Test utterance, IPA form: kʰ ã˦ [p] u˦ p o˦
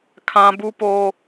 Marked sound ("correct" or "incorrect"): incorrect